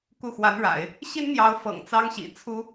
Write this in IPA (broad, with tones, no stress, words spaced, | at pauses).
ku˥˩xwa˧˥nɻa̰˨˩˦ɪ̯ | ɕi˥nn̪jɑ˧˥ʊ̯ fɤ̰˨˩ŋ t͡sɑ˥ŋɕḭ˨˩t͡sʰu˥